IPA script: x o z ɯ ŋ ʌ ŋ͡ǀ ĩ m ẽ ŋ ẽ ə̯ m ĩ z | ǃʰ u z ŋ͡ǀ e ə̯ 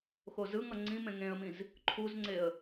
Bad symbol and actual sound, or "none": none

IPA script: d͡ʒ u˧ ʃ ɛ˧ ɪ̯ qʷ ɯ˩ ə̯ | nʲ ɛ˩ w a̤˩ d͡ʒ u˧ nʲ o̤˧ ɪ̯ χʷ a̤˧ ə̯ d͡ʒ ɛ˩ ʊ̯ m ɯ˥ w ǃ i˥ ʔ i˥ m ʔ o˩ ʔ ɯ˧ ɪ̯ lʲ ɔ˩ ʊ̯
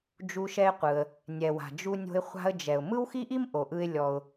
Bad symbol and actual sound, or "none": ǃ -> x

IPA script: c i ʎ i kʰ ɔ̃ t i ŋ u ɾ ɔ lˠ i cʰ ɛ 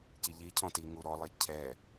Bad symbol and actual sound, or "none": kʰ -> cʰ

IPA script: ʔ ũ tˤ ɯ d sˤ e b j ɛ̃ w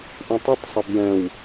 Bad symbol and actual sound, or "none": d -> tˤ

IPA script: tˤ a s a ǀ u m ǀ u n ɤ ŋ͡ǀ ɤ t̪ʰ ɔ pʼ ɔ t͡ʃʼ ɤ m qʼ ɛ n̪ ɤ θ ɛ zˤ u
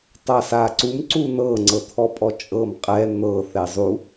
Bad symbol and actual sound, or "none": none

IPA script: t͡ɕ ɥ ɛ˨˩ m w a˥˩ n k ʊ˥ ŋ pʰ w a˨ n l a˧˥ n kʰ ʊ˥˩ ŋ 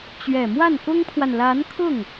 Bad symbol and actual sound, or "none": none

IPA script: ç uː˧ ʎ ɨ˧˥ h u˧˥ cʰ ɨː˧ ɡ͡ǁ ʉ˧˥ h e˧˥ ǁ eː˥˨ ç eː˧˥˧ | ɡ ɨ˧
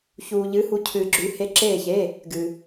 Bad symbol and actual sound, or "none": none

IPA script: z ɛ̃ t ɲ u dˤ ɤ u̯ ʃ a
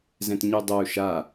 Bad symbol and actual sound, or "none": none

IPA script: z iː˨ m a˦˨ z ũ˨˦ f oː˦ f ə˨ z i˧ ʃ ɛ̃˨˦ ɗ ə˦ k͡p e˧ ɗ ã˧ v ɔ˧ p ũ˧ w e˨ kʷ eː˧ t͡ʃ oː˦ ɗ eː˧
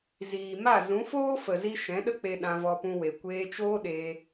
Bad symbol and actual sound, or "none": none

